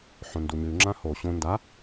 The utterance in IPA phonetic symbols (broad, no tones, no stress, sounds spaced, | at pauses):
ħ õ n d u ɲ ʉ ŋ͡ǁ ã h o ɕ õ n d a